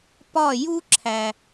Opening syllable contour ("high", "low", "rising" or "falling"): falling